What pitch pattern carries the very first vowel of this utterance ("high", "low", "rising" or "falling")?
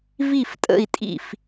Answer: falling